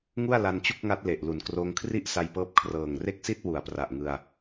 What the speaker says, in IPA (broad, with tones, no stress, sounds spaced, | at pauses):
ŋ u˥˩ a̯ l a˧ n t͡ɕ u˥˩ k̚ ŋ a˦˥ t̚ l e˨˩ ʔ l u˨˩ n k r oː˧ ŋ kʰ r i˥˩ ʔ s a˧ j p ɤː˦˥ p̚ kʰ r ɤː˨˩ ŋ r e˥˩ k̚ s i˥˩ t̚ w u˩˦ a̯ p r a˨˩ ʔ ŋ ɯ˧ a̯